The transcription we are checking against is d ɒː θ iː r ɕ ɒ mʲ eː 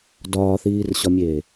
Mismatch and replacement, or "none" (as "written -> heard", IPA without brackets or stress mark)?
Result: none